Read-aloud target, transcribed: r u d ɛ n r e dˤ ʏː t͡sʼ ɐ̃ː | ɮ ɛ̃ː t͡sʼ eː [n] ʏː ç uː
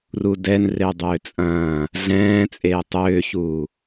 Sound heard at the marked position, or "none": tˤ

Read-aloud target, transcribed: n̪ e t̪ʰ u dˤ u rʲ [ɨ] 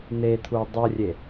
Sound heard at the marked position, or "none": e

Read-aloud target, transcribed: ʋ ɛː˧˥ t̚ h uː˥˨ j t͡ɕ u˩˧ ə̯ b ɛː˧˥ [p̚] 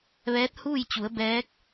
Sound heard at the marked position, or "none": k̚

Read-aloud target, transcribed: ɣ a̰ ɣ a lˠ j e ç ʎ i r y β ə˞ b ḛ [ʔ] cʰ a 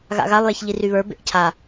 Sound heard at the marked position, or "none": ʔ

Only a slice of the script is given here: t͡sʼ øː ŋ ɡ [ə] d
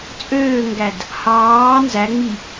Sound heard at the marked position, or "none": æ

